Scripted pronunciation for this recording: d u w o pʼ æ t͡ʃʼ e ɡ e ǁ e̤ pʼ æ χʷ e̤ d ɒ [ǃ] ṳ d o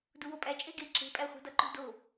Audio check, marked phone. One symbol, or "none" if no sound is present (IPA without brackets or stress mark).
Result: ǃ